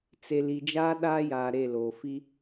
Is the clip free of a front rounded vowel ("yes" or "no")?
yes